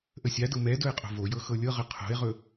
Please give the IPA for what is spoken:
ʔ ə sʲ a d ɤ m ɛ d ɵ e̯ qʼ o̤ v o j ɤ x ɤ lʲ ɤ ʁ ə qʰ o̤ e̯ ʁ ɵ

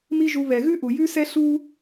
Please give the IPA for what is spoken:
m i˥ ʒ u˧ β ɛ˩ ɣ ʉ˥ ʔ u˩ j ʉ˥ s ɛ˥ ɬ u˥

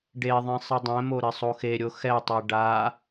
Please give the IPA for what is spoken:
ɖ e ðˤ ĩ sˤ ɘ dˤ ɛ̃ m o ɾ ɘ sˤ o x e ɾʲ o x ɛ tˤ e ɖ a

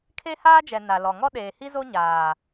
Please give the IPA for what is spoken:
kʰ e˦ h aː˦ d͡ʒ ɛ˨ n a˨ l ɔ˨ ŋ ɔ˦ ɗ eː˨ h i˦ z o˦ ɲ aː˨

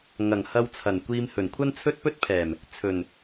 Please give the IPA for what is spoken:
ŋ ɐ˨˩ ŋ h ɐ˧ w t͡sʰ ɐ˨˩ n kʷ iː˧ m h ɵ˨˩ n kʷʰ ɐ˥ n t͡sʰ ɵ˥ t̚ p ɵ˥ t̚ pʰ ɛː˨˩ m | t͡sʰ ɵ˨˩ n

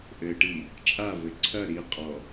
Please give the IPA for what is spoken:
ʔ ɘ ʈ i | t͡ʃʼ a v ɘ ǀʰ ɐ ɾ i qʼ ɔ

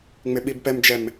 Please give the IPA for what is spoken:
ŋ͡m ɪ ɓ i b p ɛ m d͡ʒ ɛ m

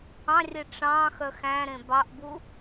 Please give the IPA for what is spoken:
ɑ̃ rʲ e ʈ͡ʂ ɑ̃ x œ x æ̃ ɾ ẽ b ɑ ʔ b u

